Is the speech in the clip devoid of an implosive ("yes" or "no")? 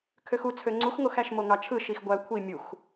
yes